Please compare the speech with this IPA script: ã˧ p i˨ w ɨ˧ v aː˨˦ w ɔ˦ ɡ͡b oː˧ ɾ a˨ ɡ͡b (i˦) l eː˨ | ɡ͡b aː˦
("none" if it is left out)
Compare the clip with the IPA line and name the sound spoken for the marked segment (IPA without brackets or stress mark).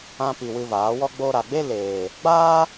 e˦